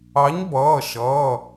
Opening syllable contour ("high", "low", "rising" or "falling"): rising